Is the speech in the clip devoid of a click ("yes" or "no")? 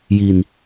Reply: yes